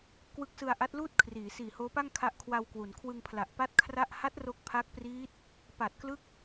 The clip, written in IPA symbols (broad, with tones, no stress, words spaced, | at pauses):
kwɯ˦˥k̚sɯ˧a̯ʔa˦˥t̚luː˥˩t̚ kʰriː˩˦siː˨˩hoː˦˥pa˥˩ŋ kʰa˦˥ʔkʰwa˧wkwu˩˦n kʰwɯ˧ŋpʰla˨˩ʔpa˥˩t̚ kʰra˥˩ʔ ha˦˥t̚ ro˦˥k̚pʰa˦˥k̚priː˦˥t̚ | pa˨˩t̚klɯ˦˥k̚